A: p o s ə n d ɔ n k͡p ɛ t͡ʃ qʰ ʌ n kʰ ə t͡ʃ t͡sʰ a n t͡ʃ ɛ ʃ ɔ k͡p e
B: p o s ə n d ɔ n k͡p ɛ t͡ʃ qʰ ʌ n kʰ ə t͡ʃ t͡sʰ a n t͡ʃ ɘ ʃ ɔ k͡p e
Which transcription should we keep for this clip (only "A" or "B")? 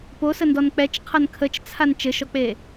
B